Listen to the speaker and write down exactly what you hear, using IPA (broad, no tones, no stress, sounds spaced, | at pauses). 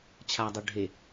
t͡ɕʰ a dˤ o ɖʱ e